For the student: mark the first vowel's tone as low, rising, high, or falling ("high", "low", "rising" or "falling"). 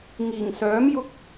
low